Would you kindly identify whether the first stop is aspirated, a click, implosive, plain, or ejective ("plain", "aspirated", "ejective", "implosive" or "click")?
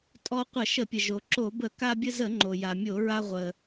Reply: ejective